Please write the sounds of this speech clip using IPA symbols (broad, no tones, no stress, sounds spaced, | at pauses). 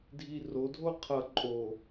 dʱ i r o dʱ o qʰ ʌ ǃʼ o